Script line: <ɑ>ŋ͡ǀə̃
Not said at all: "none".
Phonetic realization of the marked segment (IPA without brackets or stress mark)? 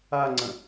a